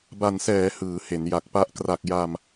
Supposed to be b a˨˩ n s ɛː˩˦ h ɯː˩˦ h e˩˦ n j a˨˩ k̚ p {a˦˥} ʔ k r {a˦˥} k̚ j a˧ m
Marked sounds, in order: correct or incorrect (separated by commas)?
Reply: correct, incorrect